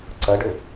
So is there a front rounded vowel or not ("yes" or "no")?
yes